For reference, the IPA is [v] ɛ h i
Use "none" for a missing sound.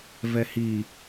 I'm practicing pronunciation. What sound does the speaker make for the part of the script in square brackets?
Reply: v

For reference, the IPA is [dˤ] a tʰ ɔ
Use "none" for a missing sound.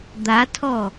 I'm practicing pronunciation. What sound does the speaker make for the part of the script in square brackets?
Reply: d̪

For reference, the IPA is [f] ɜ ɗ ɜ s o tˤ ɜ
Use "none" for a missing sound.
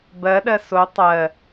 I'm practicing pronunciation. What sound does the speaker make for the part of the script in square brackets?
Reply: b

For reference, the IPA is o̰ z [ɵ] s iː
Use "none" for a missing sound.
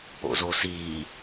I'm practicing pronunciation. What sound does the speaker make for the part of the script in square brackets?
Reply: o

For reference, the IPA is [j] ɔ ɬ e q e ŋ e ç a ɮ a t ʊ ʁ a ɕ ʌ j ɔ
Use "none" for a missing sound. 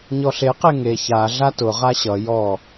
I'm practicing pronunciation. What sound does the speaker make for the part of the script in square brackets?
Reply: ɲ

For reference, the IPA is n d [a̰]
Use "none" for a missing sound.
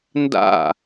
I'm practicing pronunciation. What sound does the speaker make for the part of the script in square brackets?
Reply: a̰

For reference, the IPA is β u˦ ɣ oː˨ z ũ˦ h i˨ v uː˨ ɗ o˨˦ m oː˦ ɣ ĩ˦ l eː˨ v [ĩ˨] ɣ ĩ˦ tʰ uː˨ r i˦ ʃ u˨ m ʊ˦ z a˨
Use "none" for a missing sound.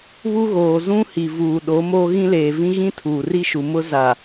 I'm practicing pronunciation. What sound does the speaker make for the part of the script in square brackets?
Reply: ĩ˦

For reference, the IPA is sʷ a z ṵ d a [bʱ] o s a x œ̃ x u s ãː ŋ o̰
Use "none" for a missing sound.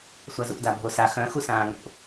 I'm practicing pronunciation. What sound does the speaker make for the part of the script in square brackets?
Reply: bʱ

